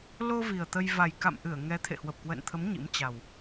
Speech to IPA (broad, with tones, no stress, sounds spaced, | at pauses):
l o˧ v i˨˩ ə̯ t̪ ə˧ j v a˨˩ j k a̰˧˨ m ʔ ɨ˧˩ ə̯ ŋ ɛ˨˦ t̪ʰ ḛ˧˨ h w ə˨˩ p̚ k w ə̰ː˧˨ n t̪ʰ ə˨˦ m ɲ ḭ˧˥ m t͡ɕ a˨˩ w